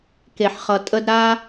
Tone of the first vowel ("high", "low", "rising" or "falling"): low